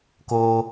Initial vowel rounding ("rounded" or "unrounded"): rounded